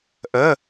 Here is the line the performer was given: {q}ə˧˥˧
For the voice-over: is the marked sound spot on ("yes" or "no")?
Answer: no